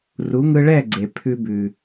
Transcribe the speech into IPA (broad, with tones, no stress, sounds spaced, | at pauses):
r u˨˦ ŋ ɯ˧ ɭ ɛ˦˨ ɡ͡ǀ e˨ pʰ ʉ˧ b ʉ˨